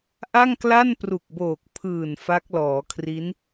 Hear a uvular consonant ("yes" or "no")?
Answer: no